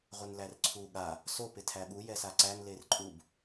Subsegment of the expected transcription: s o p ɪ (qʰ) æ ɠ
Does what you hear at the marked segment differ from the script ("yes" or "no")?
yes